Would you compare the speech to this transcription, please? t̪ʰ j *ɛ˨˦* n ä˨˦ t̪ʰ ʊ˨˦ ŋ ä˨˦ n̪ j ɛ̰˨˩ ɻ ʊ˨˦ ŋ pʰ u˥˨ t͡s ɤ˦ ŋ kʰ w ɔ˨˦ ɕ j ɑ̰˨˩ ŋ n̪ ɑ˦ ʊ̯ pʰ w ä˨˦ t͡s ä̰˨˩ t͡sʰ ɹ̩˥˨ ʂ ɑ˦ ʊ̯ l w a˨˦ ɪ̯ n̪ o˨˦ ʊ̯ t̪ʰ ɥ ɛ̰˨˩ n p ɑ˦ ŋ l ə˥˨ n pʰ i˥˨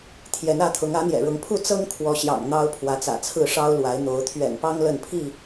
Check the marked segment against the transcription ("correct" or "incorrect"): correct